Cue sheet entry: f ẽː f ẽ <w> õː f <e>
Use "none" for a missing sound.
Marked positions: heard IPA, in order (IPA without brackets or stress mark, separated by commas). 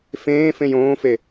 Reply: j, e